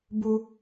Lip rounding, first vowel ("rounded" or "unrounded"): rounded